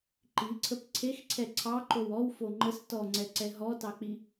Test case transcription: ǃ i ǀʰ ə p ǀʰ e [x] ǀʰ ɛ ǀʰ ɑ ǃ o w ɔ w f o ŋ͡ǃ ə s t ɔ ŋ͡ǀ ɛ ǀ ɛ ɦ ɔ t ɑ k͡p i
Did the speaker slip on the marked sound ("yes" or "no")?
no